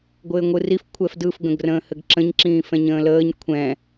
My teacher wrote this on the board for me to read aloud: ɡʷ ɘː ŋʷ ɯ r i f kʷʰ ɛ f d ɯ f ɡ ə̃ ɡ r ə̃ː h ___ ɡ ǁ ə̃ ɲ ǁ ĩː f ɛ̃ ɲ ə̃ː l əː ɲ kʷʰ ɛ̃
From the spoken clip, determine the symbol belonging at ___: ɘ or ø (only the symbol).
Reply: ɘ